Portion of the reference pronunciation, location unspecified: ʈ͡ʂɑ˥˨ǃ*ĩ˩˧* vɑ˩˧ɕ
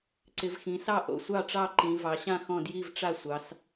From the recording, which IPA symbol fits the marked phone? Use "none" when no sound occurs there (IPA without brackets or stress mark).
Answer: ĩ˩˧